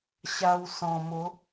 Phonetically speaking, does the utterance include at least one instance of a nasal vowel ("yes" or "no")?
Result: yes